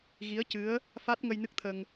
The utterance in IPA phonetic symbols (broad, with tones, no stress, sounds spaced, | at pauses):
ɣ i˧˥ ə̯ c ɨ˧˥ ə̯ | f a˦˥ t̚ ŋ ə˧ j n ɨ˦˥ k̚ t̪ʰ ə˧ ŋ